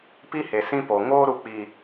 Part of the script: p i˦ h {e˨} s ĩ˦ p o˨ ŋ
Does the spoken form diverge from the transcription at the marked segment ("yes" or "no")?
no